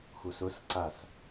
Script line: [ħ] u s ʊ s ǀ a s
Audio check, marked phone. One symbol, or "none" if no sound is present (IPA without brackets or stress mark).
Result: x